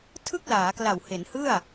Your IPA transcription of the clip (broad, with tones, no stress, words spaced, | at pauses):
tʰɯ˥˩k̚laː˩˦kla˨˩w he˩˦nhɯ˥˩a̯